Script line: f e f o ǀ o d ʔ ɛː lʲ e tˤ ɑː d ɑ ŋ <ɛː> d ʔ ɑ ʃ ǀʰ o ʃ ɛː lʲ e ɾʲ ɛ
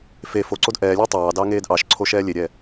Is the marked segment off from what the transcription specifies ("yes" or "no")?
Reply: yes